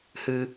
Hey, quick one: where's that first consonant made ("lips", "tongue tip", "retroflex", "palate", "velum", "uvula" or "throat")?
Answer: throat